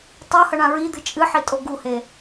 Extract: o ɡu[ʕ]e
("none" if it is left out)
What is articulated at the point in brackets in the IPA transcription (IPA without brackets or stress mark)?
h